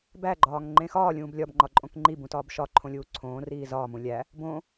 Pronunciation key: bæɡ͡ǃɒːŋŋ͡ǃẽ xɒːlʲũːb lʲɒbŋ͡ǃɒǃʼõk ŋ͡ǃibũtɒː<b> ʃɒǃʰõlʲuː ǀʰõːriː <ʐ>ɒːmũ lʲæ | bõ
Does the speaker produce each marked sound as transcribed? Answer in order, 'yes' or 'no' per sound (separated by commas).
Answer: yes, no